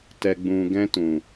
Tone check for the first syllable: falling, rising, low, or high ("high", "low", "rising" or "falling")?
low